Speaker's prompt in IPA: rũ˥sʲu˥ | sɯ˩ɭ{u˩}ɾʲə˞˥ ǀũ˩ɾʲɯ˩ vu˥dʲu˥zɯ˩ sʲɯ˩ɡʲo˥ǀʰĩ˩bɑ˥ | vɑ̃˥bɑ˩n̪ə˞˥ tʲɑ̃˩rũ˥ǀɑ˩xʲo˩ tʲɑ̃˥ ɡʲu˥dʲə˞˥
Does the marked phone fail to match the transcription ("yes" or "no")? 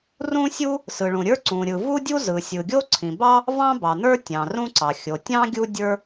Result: yes